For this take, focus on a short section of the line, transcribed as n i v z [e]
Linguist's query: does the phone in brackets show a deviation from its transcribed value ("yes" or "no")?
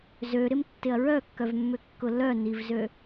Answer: yes